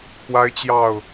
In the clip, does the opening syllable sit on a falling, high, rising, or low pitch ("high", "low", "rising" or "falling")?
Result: high